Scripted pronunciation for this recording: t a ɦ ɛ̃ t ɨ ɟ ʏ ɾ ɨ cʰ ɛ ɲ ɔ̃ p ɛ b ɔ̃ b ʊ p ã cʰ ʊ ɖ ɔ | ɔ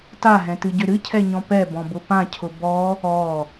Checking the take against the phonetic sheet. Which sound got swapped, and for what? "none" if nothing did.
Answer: ɖ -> b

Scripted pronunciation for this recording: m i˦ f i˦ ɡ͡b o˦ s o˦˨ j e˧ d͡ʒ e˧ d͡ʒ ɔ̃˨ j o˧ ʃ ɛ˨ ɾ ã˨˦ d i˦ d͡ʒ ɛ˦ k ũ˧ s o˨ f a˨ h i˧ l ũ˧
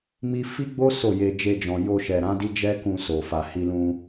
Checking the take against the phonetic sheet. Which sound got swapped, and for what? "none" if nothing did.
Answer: none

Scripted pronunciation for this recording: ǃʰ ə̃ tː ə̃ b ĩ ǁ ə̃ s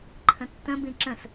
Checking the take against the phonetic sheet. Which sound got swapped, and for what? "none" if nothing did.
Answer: none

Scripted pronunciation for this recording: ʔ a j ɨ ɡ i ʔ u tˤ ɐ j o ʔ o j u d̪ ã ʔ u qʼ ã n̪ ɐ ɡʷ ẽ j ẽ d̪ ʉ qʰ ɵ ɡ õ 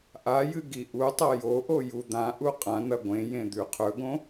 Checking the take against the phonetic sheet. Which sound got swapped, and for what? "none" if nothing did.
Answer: none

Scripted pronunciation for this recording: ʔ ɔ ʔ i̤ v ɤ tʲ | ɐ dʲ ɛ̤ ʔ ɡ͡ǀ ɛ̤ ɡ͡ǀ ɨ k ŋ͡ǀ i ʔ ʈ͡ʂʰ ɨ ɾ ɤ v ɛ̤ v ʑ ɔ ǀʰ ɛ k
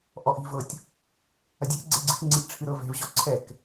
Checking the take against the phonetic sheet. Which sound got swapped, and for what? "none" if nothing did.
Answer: none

